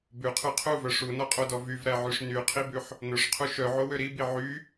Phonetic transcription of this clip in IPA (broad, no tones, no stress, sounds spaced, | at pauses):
b ʉ qʰ ʉ qʰ u v œ ʂ u n ɔ qʼ o d ɔ v y v ɾ æ ʕ y ʂ n y qʰ i b ʉ ħ | n ɵ ʂ qʰ u ʃ œ ʕ o w ø ɾ i b i ʕ y